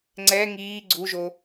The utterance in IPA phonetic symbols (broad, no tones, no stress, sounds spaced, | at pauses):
ŋ͡ǀ ɛ ŋ iː ɡ͡ǀ u ʒ o